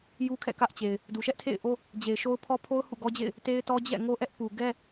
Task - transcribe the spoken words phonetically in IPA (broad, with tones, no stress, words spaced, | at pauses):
ju˦kʰɛ̰˦˨kä˦ʔt͡ɕe˨ɪ̯ | du˨ʃɛ˦ʔtʰḛ˦˨ɪ̯ʔo˦ | d͡ʑe˨ɪ̯ʃo˦ʊ̯pʰɔ˦ pʰo˦ʊ̯ hṵ˦˨ɡɔ˦d͡ʑḛ˦˨ɪ̯ | te˦ɪ̯tɔ˦ d͡ʑɛ̰˦˨ŋo˦ʔɛ˦ʔ pu˨ɡɛ˦